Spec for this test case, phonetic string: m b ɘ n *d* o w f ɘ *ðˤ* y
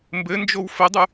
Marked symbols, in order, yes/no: no, no

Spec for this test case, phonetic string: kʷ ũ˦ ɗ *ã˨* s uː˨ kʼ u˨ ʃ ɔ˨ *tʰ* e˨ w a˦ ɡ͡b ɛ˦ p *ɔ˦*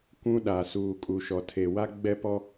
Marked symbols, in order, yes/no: no, yes, yes

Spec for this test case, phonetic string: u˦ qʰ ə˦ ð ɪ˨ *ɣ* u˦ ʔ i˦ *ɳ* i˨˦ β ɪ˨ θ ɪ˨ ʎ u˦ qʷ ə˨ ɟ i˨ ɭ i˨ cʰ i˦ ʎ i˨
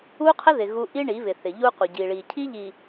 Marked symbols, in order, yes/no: yes, yes

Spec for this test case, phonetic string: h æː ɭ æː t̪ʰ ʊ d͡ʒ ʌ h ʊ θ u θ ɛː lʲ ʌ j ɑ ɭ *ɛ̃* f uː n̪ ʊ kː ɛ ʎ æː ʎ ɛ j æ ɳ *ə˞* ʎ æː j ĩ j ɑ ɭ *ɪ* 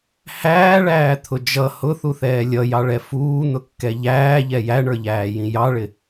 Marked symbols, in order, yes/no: no, yes, yes

